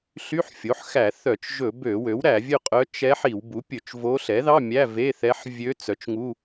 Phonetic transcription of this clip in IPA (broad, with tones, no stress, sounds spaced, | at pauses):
ɬ y˧˥˧ ħ fʲ o˩˥ ħ x æ˧˩˧ θ œ˧˩˧ t͡ʃ ʒ ɵ˧˩˧ b ø˧˩˧ w ø˩˥ w ɾ æ˧˩˧ vʲ ɵ˥˧ qʼ œ˧˥ t͡ʃ ɛ˧˥ ħ i˧˩˧ w b u˩˥ pʲ ɵ˧˩˧ t͡ʃ v o˧˥ ɬ ɛ˩˥ ð ɑ˧˥˧ mʲ æ˧˥˧ v e˧˥˧ θ ɛ˧˥ ħ vʲ ø˧˥ t͡s œ˩˥ t͡ʃ ŋ u˧˥˧